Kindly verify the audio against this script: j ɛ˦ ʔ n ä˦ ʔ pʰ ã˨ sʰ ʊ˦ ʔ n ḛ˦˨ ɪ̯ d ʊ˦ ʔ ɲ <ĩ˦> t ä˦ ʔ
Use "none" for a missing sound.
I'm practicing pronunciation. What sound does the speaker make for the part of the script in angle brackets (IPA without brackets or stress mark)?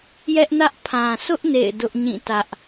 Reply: ĩ˦˨